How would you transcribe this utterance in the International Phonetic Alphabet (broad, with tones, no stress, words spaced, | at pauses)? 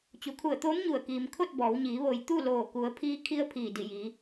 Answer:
t͡ɕu˩˧kʰu˧˩ə̯t̪oː˧˥m ɲu˧˩ə̯kiː˩mkʰo˥˨t̚ bɔː˩˧wɲiː˩˧ ʋo˩j t̪u˥˨loː˧˩ku˩˧ə̯ pʰiː˧˥kʰi˧˥ə̯ pʰiː˧˩di˧˩ji˩˧